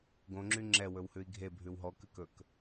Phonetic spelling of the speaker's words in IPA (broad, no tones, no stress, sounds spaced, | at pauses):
ɡ õ ŋ͡ǁ y ŋ͡ǁ ɛ w ɵ w h ʉ i̯ ɡʱ e bʱ ʉ w ɦ ɔ k ʉ k ɵ k